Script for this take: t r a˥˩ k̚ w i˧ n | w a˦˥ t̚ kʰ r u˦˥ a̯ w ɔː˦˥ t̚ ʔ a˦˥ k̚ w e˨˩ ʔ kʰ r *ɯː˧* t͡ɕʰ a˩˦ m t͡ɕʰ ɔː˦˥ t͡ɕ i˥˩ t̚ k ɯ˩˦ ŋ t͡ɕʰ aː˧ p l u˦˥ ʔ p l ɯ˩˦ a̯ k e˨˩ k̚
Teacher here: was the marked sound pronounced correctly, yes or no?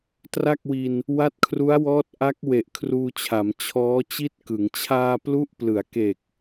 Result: no